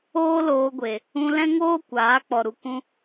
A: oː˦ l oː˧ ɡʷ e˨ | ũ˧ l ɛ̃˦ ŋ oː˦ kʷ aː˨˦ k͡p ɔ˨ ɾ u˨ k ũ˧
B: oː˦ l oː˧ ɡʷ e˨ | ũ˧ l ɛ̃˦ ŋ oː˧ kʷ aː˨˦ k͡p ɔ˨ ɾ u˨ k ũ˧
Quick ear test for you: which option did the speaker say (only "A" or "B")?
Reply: A